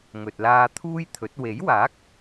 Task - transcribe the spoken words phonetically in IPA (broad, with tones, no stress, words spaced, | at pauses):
ŋɵ˨t̚laː˧t̪ʰuː˥jt̪ʰɵ˨˥t̚ we˨˥jwaː˨˥k̚